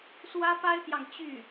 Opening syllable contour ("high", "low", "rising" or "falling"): high